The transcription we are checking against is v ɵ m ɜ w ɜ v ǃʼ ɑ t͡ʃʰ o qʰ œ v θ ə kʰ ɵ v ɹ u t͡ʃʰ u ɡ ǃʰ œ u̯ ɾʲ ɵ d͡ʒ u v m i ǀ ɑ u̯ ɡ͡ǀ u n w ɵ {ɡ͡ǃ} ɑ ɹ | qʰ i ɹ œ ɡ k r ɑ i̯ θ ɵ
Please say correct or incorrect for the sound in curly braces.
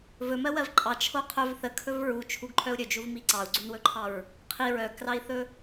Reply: incorrect